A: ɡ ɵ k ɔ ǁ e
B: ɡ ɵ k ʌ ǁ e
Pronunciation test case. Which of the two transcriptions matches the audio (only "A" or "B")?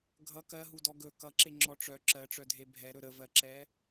B